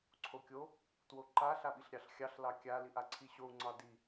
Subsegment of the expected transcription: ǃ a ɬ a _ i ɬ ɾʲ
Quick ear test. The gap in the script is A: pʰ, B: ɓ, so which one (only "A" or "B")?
B